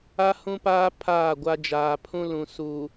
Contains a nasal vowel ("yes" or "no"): yes